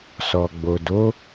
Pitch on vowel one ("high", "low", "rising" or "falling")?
low